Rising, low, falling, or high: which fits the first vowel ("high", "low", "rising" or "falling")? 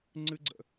high